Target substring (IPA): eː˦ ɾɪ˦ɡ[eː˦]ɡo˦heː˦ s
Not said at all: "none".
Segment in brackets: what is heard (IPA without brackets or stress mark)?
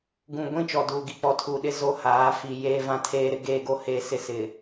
eː˦